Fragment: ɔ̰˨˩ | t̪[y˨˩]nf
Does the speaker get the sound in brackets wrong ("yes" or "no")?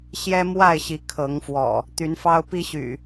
yes